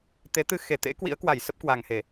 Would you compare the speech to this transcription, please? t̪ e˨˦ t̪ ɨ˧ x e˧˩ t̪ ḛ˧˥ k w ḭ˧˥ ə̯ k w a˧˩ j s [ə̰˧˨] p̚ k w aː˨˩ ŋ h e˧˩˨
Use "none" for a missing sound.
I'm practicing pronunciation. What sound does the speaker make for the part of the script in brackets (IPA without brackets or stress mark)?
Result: ə˦˥